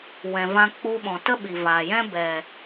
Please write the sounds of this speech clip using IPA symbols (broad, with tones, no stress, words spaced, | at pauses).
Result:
wɛ̃˨vã˧ k͡pu˧ɓɔ̃˨ tə˦ɓi˨vaː˨jɛ̃˦ bɛ˨